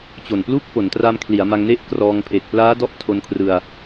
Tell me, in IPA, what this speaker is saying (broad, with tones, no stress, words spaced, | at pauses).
t͡ɕo˨˩nplu˥˩k̚ po˩˦ntra˧mkʰli˩˦a̯ ma˧ŋne˥˩ʔkrɔː˧ŋ pʰe˨˩k̚plaː˦˥dɔ˦˥ʔ tʰo˧nkʰrɯ˧a̯